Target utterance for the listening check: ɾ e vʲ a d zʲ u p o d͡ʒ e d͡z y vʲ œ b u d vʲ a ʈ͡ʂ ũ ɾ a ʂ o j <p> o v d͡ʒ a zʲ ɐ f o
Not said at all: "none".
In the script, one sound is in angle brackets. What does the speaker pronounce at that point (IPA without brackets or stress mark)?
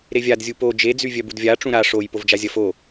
p